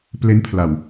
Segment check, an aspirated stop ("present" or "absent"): present